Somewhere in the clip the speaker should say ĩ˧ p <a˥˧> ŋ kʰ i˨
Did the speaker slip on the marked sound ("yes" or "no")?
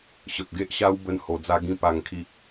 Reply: yes